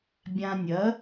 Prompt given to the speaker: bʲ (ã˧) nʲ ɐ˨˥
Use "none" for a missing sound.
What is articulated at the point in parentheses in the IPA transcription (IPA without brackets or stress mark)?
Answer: ã˧